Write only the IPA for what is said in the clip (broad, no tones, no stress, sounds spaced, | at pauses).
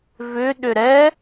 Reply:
v ʏ ɗ ʏ ɾ ɛ